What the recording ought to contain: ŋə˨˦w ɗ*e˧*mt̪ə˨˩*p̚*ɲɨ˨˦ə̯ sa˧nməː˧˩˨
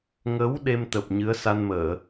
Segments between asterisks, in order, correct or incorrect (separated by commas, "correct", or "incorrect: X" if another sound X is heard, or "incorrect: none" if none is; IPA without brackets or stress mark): correct, correct